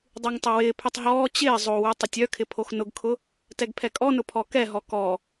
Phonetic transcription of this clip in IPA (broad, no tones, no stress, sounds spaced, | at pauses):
dˤ y ŋ tˤ ɪ w ɪː pʰ y tˤ ɦ ɔː t͡ɕ ɪː zˤ o w y tˤ ʊ tʲ œ kʰ ɪ pʰ o x n ʊ ɡ kʰ ʊ | t ɛ ɡ pʰ ɛ kʼ ɔ n ʊ pʰ ɔ k ɛ ɦ ɔ k ɔ